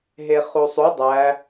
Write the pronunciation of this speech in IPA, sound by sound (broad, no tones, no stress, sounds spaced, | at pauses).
ɦ e χ u sˤ u dˤ æ